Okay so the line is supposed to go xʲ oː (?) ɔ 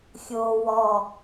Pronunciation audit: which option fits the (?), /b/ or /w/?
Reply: w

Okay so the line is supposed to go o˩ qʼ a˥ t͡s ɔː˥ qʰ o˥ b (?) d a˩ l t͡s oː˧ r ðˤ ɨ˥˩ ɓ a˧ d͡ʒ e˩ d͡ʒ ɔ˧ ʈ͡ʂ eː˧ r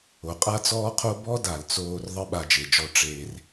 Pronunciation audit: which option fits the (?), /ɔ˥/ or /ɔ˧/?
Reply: ɔ˥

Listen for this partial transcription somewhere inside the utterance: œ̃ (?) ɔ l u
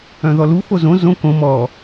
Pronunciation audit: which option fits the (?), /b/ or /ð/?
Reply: ð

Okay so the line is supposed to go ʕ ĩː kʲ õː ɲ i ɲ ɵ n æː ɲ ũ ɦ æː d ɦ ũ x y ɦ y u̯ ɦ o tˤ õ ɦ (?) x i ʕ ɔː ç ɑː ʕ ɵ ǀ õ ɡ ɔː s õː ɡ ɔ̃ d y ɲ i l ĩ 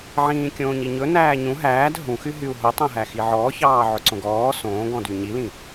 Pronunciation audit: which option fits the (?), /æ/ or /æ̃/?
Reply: æ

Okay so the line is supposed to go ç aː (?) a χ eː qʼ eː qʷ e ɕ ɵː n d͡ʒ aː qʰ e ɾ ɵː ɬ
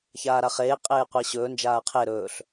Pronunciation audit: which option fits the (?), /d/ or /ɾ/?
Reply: ɾ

